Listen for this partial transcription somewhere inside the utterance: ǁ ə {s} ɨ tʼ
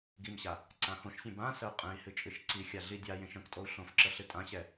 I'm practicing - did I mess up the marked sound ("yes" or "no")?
yes